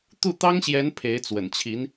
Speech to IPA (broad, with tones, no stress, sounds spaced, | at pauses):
t̪ u˥˩ t̪ ɑ˥ ŋ ɕ j ɛ˧˥ n pʰ e˧˥ ɪ̯ t͡s w ə̰˨˩ n t͡ɕʰ i˧˥ n